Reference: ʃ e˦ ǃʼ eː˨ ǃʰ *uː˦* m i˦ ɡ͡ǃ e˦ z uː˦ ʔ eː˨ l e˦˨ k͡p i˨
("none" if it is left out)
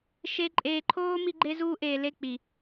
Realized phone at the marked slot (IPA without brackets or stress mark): oː˦